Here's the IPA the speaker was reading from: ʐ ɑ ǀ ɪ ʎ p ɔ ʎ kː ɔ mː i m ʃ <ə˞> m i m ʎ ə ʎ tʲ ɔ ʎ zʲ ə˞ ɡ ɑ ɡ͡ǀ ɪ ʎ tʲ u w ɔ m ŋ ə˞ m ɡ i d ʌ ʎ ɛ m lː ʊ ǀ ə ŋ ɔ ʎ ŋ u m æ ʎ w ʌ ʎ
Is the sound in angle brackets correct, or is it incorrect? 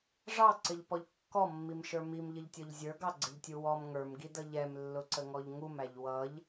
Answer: correct